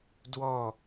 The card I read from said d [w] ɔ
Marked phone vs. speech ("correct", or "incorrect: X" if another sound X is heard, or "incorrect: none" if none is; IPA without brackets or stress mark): correct